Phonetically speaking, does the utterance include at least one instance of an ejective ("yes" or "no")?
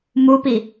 no